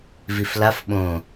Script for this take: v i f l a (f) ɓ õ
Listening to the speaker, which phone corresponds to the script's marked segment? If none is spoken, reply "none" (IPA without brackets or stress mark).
f